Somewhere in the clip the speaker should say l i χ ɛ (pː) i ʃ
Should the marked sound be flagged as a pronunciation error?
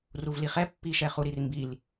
no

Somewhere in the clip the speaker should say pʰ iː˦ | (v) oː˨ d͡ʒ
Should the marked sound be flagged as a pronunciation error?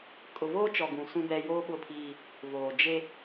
no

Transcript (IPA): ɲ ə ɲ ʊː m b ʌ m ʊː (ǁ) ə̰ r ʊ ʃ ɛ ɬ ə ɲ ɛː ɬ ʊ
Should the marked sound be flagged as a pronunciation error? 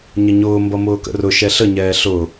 yes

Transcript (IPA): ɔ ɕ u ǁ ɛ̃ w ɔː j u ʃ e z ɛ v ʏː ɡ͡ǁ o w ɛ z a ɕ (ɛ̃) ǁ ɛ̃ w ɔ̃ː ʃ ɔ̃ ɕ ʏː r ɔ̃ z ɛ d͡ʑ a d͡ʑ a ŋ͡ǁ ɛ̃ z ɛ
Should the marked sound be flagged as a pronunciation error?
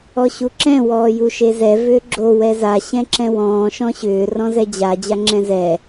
no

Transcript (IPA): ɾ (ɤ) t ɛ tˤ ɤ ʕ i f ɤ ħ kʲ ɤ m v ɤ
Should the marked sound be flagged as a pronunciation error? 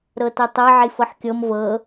no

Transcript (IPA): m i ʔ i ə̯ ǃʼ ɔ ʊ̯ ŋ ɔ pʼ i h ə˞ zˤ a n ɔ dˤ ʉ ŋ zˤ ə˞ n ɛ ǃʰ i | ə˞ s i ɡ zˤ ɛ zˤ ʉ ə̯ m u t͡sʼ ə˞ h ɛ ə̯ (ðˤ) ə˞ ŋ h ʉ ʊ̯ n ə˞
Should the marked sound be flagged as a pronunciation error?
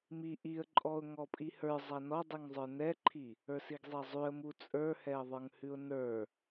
no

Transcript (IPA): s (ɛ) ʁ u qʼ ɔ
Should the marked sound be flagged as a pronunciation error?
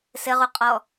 yes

